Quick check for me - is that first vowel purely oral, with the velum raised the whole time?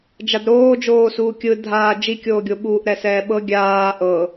yes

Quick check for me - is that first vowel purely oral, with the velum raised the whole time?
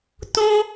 no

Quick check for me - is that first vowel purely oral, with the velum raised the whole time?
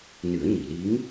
yes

